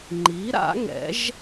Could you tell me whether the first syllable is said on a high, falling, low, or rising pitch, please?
rising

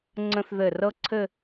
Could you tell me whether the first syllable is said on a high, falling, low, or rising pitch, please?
high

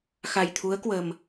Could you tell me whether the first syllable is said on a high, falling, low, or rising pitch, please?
low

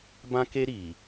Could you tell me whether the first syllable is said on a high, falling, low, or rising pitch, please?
high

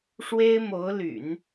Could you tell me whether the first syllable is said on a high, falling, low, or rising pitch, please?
high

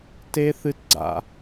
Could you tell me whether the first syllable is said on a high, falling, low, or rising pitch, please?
high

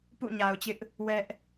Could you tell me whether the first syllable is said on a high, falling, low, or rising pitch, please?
falling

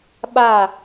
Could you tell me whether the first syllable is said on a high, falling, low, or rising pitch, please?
falling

